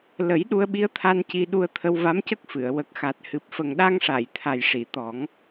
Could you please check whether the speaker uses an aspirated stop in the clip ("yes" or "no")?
yes